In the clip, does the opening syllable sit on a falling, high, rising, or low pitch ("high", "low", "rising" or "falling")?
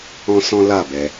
high